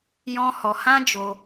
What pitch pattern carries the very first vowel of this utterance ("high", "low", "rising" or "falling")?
high